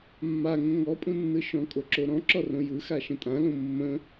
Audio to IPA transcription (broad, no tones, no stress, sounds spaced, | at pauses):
mː a ŋ ə̃ ŋ ɔ pʼ ũ nː ɯ ʃ ɔ̃ kʼ o ǁ o ɾ ɔ̃ ǁ ɔ r õ j ɯ x a ʃ ə̃ tʼ ã l õ mː ə̃